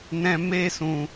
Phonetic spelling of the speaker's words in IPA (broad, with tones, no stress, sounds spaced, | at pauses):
n ɛ̃˦ m e˦ s ũ˧